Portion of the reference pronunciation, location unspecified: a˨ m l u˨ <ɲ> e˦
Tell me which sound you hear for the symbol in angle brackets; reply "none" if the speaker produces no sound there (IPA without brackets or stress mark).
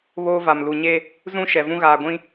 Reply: ɲ